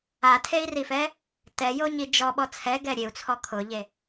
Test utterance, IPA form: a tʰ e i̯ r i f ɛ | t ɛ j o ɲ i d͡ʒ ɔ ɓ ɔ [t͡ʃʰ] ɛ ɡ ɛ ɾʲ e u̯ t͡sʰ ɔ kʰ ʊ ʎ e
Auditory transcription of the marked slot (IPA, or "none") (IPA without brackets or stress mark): t͡sʰ